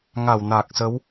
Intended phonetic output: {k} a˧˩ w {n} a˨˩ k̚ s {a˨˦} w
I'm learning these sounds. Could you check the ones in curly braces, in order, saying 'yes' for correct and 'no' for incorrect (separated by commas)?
no, yes, no